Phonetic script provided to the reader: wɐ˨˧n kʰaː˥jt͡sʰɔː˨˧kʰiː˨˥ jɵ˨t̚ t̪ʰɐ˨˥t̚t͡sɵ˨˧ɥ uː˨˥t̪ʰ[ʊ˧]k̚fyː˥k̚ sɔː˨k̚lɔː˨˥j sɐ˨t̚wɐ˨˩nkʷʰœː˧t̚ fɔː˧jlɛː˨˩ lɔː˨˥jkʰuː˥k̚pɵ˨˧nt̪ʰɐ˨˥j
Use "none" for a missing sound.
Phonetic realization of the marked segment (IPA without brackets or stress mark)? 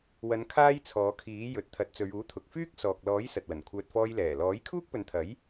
ʊ˨